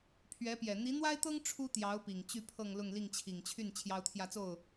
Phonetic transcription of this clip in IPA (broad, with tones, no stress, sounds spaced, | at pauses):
pʰ ɥ ɛ˧˥ p j ɛ˨˩ n̪ i˧˥ n̪ w a˥ ɪ̯ t̪ ɤ˥ ŋ ʈ͡ʂʰ u˥ t̪ j ɑ˧˥ ʊ̯ p i˨˩ ŋ t͡ɕ y˥˧ pʰ ɤ˥˧ ŋ l ʊ˥˧ ŋ l i˥˩ ŋ t͡ɕʰ i˨˩ ŋ t͡ɕʰ y˥˩ n t͡ɕʰ j ɑ˥ ʊ̯ t̪ʰ j ä˥˧ t͡s o˥˩ ʊ̯